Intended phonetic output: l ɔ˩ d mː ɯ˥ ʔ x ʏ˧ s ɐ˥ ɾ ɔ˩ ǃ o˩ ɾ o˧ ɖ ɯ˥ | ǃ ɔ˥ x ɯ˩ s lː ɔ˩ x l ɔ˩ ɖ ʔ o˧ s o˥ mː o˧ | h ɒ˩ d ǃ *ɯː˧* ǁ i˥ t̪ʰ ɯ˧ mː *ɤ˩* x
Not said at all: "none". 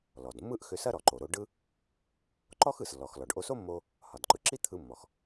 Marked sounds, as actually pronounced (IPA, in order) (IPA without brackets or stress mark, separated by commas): ɯ˧, ɔ˩